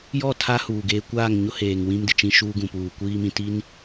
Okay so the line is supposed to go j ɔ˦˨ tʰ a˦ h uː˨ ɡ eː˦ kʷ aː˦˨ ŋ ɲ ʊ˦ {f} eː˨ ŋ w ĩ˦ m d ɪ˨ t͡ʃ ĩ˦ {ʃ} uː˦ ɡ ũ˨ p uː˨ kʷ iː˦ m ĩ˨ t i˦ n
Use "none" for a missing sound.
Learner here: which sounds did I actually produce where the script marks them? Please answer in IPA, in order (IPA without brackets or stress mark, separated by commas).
h, ʃ